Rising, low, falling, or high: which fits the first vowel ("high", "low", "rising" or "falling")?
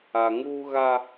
low